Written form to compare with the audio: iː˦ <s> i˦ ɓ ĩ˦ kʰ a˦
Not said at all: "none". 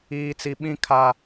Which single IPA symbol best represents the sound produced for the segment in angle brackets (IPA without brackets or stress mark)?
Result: t͡s